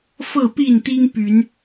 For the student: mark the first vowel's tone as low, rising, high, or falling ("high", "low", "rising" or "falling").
falling